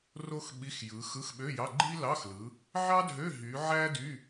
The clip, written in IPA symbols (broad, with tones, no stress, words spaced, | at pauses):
ro˥xɓi˧˥˧xjɯ˨˦ xɯ˧˥˧xɓø˧˥˧jɑ˧˥˧ɡ͡ǃi˥ lɑ˧˥˧xlɯ˨˦ | ʕɑ˥dʱø˧˥˧ ɦy˨˦ ʕæ˥dy˧˥˧